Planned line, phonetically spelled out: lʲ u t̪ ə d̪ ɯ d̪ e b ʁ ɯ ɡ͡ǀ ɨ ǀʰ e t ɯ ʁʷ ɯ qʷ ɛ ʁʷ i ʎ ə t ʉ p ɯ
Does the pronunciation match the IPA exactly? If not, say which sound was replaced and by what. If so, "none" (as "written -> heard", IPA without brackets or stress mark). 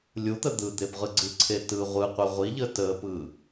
ʉ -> ə